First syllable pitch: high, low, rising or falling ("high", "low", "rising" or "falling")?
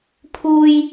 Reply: high